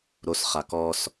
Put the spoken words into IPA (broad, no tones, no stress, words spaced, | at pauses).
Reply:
ɾos χakɔs